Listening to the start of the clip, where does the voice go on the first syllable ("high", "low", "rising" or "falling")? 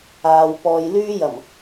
low